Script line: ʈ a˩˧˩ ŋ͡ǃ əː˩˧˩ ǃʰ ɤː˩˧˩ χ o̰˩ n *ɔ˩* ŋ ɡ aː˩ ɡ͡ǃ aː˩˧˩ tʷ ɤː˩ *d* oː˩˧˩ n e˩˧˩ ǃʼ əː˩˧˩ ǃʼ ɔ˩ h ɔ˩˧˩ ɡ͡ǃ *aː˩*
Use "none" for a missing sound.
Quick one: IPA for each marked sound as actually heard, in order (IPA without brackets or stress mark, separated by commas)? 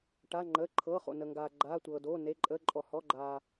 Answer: ə˩, d, aː˩